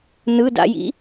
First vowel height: high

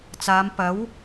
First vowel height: low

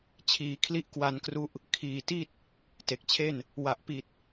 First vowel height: high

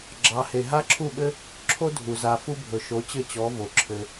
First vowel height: low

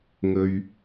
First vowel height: mid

